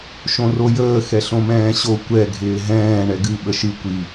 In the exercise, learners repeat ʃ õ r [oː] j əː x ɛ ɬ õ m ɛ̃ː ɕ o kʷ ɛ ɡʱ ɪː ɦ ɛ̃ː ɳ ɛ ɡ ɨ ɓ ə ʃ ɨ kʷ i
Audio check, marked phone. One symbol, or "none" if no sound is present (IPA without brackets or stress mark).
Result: o